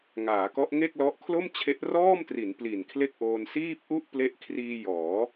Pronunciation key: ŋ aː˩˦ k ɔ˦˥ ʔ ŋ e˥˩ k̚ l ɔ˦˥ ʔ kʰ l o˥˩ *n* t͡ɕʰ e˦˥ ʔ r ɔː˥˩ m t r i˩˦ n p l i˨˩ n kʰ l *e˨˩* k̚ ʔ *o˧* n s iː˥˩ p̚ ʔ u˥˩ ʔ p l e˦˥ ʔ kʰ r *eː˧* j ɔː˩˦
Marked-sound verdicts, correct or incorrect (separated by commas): incorrect, incorrect, incorrect, incorrect